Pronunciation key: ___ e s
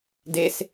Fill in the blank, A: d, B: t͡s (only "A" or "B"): A